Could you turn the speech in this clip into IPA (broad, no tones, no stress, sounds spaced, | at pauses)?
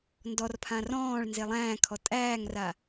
n d ɔ r pʰ ã r ɔ̃ː ɭ n z e lˠ æ̃ː kʰ ɔ tʼ æː ŋ r a